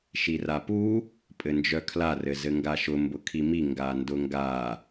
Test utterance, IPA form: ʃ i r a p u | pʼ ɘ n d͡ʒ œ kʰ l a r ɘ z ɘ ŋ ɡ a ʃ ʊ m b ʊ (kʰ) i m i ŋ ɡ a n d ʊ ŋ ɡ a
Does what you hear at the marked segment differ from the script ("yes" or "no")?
no